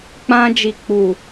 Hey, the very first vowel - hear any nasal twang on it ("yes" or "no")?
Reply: yes